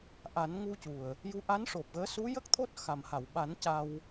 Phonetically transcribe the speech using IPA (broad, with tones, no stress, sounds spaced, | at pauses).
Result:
ʔ a˨˩˦ n ŋ u˧ c u˨˩ ə̯ | j u˧˥ ʔ a˧˥ n ʂ o˨˩ p̚ ɣ əː˧˥ s u˧˥ j ə˦˥ k̚ t̪ʰ o˦˥ t̚ x a˨˩ m h a˨˩˨ w ɓ a˨˩˦ n c a˧ w